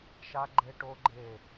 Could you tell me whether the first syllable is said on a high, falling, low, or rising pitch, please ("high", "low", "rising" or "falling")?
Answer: high